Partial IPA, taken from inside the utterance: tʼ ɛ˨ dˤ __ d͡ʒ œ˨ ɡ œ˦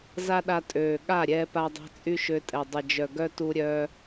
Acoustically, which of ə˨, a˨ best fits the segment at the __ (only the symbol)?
ə˨